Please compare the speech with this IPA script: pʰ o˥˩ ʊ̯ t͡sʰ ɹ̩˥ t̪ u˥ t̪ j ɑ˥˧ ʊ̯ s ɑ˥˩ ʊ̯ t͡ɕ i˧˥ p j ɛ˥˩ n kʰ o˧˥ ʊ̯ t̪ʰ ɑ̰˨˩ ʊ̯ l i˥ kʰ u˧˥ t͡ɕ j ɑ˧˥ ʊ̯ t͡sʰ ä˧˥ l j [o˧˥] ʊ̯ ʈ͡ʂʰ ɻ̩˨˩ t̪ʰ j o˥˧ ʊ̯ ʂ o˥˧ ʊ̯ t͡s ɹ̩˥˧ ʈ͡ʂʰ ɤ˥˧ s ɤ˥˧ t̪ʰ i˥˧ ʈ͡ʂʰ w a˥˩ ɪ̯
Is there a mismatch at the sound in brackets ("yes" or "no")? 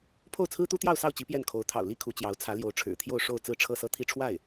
no